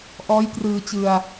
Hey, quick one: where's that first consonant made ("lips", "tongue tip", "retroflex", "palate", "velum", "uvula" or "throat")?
throat